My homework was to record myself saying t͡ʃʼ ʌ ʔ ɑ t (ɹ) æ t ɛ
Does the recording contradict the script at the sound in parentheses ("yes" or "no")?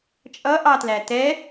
yes